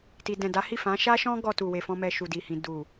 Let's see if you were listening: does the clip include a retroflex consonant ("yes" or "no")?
no